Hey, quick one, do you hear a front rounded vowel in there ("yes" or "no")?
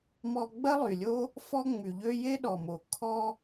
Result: yes